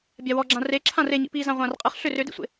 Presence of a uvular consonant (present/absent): present